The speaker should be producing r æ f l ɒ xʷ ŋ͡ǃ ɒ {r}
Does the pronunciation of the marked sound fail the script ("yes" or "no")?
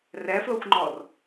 no